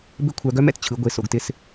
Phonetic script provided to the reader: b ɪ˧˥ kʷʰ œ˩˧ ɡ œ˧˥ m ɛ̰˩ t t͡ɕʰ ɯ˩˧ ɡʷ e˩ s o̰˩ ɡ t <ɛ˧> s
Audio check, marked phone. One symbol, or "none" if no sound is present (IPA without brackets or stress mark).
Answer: ɪ˧